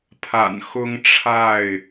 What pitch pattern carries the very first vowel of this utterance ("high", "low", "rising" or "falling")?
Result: low